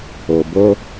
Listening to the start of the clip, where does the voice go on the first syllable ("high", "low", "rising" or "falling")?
low